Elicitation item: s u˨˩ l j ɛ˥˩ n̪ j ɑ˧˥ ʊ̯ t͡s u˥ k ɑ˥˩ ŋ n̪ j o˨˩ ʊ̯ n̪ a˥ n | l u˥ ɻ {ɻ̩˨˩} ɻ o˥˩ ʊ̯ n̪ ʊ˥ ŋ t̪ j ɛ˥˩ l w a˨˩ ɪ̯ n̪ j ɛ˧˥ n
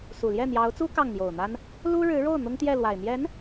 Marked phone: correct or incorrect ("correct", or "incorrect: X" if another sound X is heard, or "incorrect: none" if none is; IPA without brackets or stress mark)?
incorrect: ɻ̩˧˥